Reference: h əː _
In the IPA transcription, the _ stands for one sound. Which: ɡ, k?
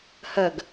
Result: ɡ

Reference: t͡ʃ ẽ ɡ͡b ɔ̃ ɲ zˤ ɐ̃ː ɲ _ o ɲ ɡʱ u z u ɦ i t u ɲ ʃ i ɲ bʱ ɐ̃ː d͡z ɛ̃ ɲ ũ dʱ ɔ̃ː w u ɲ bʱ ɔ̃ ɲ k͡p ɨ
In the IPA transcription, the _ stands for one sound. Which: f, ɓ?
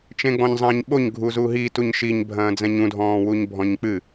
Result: ɓ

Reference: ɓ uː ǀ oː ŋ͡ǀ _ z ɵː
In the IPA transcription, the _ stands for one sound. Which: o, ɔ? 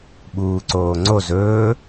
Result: o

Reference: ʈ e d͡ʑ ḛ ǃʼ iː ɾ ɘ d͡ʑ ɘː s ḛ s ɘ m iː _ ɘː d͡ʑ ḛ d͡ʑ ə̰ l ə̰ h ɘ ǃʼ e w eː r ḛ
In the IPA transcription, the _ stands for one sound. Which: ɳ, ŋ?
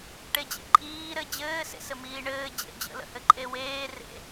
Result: ɳ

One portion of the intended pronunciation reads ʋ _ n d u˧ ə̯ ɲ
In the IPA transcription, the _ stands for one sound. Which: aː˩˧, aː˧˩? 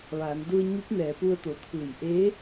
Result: aː˩˧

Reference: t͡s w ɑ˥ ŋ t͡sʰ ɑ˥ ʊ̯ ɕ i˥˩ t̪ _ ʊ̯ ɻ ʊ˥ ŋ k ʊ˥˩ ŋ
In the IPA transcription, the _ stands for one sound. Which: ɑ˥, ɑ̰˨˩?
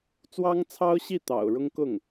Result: ɑ̰˨˩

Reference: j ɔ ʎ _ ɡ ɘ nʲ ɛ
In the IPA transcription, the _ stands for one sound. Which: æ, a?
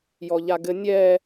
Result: a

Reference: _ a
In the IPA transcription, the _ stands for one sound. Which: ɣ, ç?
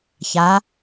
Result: ç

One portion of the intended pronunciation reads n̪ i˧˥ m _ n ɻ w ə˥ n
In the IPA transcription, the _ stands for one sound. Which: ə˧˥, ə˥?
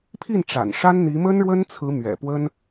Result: ə˥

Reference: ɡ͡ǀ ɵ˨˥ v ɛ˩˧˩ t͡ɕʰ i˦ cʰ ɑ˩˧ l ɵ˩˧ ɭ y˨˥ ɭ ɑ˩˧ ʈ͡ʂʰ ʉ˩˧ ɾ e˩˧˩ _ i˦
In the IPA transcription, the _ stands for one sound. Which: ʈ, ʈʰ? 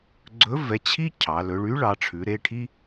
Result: ʈʰ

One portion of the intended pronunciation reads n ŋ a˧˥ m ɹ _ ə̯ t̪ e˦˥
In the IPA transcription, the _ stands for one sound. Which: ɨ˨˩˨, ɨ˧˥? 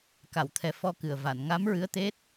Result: ɨ˧˥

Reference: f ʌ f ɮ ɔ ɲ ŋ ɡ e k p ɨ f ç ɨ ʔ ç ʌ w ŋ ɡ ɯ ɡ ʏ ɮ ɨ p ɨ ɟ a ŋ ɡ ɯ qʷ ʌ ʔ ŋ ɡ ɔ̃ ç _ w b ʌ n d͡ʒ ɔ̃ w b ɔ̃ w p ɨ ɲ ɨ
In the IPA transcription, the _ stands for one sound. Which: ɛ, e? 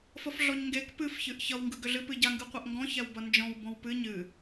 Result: ɛ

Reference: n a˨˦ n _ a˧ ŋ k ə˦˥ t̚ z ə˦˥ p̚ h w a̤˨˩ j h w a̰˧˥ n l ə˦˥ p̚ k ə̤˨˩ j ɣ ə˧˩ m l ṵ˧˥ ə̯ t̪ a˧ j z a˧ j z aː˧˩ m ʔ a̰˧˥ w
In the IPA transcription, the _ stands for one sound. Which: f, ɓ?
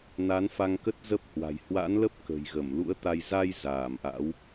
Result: f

